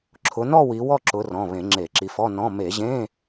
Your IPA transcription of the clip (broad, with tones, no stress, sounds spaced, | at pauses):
ǁʰ ʊ˨˦ n ɔ˥˧ w i˨˦ w ɔ˥˧ ǁ ʊ˨˦ r ɔ̃˩˧˩ β ẽ˧˩˧ ŋ͡ǁ e˧˩˧ ǁ i˨˦ f ɔ˧˥˧ n ɔ̃˧˥˧ m e˧˩˧ ʑ ẽ˧˥˧